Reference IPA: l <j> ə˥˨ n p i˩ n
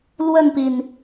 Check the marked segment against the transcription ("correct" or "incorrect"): incorrect